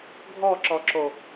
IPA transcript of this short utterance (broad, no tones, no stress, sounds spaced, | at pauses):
ɡʱ ɔ ǁ ɔ ǁ o